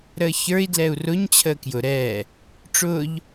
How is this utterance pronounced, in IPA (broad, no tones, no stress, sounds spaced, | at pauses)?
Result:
ɾ əː ç ə˞ i̯ d l ɛ u̯ r ʊ ɲ t͡ɕʰ əː k j ʊ ɾ ɛ | ʈ͡ʂ ʊː ʎ